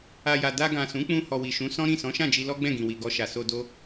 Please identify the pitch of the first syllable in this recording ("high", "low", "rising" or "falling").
low